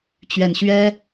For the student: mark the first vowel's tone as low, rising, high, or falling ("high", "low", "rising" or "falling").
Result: low